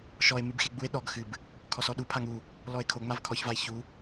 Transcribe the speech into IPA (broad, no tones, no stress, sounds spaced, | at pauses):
ʃ ɔ e̯ m ɨ b x e ɡ͡b u e̯ ɗ ɔ ɡ x ɨ b | kʰ ɔ s ɔ ɗ u pʰ a ŋ u | l ɔ e̯ kʰ o ŋ͡m a v kʰ ɔ ç v a e̯ ç u